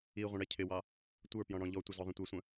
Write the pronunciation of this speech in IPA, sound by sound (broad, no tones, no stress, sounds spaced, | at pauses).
i ʁʷ ə̃ ɽ ɛ cʰ ɪ w ɑ | tʷ ə˞ p j ɔ̃ ɽ ɔ̃ ʎ ɔ tʷ ɪ z ɔ ðˤ ə̃ tʷ ɛ sʷ ə̃